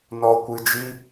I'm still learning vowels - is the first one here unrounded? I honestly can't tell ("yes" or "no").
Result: no